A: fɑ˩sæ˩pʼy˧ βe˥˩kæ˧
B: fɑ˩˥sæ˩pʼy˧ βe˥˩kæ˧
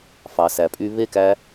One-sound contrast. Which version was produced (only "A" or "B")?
A